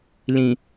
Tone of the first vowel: low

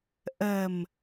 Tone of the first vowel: low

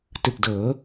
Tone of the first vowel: low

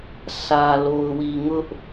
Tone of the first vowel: low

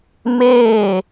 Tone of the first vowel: falling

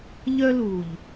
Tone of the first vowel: high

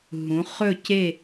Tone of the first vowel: rising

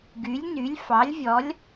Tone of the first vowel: rising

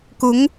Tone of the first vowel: rising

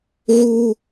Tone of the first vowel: high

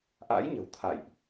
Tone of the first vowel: rising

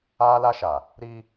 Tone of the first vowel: high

